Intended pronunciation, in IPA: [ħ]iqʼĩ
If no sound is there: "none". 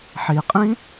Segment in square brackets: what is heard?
ħ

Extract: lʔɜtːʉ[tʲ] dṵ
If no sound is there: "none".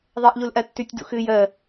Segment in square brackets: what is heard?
tʲ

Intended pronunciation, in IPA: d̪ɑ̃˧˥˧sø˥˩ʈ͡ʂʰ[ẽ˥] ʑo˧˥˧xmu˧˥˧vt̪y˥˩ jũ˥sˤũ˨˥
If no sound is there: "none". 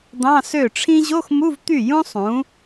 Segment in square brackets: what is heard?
ĩ˥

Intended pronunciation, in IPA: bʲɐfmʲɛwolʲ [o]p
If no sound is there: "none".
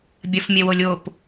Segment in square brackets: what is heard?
o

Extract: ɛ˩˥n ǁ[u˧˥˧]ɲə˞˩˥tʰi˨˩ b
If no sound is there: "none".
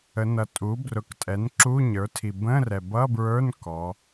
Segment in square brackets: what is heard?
u˧˥˧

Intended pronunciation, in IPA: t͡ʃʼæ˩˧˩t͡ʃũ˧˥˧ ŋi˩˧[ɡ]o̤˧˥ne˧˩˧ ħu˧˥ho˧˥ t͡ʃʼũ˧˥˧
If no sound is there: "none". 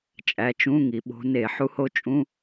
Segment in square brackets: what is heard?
ɓ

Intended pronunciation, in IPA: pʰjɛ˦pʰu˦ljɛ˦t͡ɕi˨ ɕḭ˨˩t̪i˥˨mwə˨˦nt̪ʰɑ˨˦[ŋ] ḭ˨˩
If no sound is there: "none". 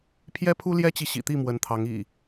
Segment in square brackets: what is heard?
ŋ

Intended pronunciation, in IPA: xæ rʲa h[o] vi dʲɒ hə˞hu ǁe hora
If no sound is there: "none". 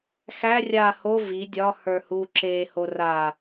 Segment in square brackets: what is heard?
o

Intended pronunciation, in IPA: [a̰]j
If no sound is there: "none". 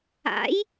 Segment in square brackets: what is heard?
a̰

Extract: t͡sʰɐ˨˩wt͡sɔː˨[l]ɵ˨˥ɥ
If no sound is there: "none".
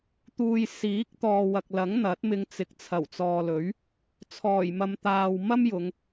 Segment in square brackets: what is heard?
l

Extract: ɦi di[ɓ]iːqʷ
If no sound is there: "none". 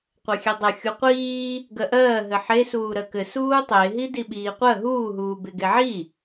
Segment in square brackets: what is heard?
ɓ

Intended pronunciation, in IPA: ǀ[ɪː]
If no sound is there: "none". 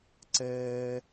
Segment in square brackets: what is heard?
ɛː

